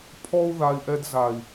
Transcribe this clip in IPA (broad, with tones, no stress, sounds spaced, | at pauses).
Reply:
pʰ ɔ˦ u̯ ð a˧ i̯ ʔ ɛ˧ d z a˨ i̯